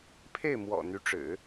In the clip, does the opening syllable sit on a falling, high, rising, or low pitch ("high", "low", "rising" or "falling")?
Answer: falling